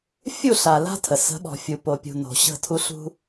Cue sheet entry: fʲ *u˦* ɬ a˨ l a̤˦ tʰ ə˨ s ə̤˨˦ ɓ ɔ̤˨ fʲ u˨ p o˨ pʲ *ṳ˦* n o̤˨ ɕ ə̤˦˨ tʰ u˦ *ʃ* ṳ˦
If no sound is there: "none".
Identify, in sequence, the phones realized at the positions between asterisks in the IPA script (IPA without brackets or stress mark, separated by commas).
u˦˨, ṳ˨, ɬ